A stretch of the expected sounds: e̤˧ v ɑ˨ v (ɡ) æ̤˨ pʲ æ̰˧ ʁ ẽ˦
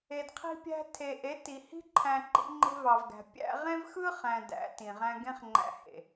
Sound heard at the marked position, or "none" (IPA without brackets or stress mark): ɡ